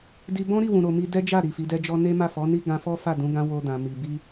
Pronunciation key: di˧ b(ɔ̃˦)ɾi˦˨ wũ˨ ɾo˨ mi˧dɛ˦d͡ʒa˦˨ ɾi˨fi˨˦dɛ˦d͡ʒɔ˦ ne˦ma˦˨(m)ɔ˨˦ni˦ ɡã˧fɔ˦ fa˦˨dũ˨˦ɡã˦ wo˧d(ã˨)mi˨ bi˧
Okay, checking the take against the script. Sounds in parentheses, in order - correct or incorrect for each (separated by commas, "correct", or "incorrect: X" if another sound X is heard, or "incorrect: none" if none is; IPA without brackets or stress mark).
correct, incorrect: f, correct